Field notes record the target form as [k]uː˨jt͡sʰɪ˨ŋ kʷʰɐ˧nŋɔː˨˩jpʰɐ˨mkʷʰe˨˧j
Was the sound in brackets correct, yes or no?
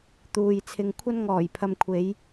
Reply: no